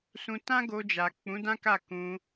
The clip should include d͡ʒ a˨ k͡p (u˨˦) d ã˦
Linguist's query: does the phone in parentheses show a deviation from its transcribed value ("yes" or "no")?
yes